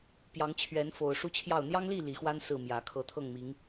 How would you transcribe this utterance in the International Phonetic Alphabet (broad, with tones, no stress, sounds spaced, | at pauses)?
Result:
p j ɑ˨˦ ŋ t͡ɕʰ ɥ ɛ˨˦ n f o˨˩ ʊ̯ ʂ u˦ t͡ɕʰ j ɑ˥˨ ʊ̯ n̪ j ɑ˦ ŋ l i˥˨ l i˨˩ x w a˦ n s ɹ̩˥˨ m j ä˨˩ kʰ ɤ˨˦ t̪ʰ ɤ˥˨ ŋ m i˨˦ ŋ